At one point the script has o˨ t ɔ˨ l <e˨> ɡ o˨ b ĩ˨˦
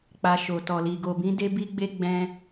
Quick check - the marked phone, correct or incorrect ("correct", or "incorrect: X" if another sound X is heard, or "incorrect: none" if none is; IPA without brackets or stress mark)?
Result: incorrect: i˨